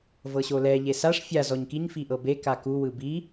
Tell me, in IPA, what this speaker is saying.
v ɤ ɕ o l ɛ ʎ e s a ʂ fʲ a z ɔ ɲ k i ɲ f i ʔ ɤ b e k a k u w ɯ b i

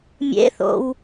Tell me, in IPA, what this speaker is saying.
mʲ ḛ θ o̰ w

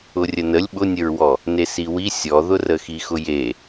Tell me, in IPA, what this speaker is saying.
ʊ rʲ ə n ə lʲ ɓ ʊ nʲ ə ɹ w ɔ | n e s i w i sʲ ɔ ð ʊ r ə x i x ʊ j e

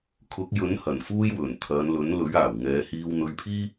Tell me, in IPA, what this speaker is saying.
kʰ ʊ˨˥ k̚ j ɵ˨˥ n h ɐ˨˩ n f uː˥ j w ɵ˨˩ n t̪ʰ ɐ˨˧ n l ɵ˨˥ n l ɵ˨˥ ɥ aː˨˩ w ŋ ɛː˨˧ h iː˧ w n̪ ɵ˧ ɥ pʰ iː˥

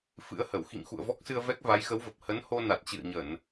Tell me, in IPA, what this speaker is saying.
f ɨ̰˧˥ ə̯ h ə˧˩ w x ḭ˧˨ ŋ x ṵ˧˨ ə̯ v ɔ˦˥ k̚ s ɨ˧ ə̯ v ɛ˦˥ k̚ v a˨˦ j x ə˨˦ w v ə˨˩ p̚ h ə˨˦ n h o˧ n a˨˩ t̚ t͡ɕ ɨ̰˧˨ ə̯ ɲ ə˧˩˨ n

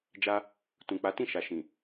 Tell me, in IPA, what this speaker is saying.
d͡ʒ a˧ | t ũ˨ k͡p a˨˦ t ĩ˦˨ ʃ a˨ ʃ ĩ˨

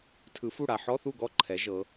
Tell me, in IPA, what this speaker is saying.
tʰ ɯ˨˩˦ f u˥˩ ɽ a˨ ħ ɔ˧˥˧ θ u˥˩ ɡ ɔ˥˩ ǃʰ ɛ˩˥ ʒ ɤ˩˥

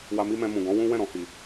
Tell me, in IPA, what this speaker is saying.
w a˧ m i˦ m ɛ̃˧ m ũ˨ ɡ ɔ̃˨˦ w ũ˦ w ɛ̃˦˨ ɾ ɔ̃˨ h i˨

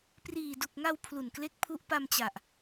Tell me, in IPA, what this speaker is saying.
p r iː˨˩ d u˨˩ k̚ ŋ a˧ w pʰ l u˨˩ n k l e˦˥ k̚ pʰ u˦˥ ʔ p a˧ m t͡ɕ a˨˩ ʔ

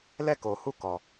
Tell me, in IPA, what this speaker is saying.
l ɛ˦˨ k o˨ h u˦˨ k ɔ˨

